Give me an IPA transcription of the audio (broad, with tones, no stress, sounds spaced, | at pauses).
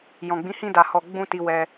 j ɔ̃˨ ɡ͡b ĩ˨˦ h ĩ˧ d a˨ h ɔ˨ ɡ͡b ũ˧ t i˧ w ɛ˧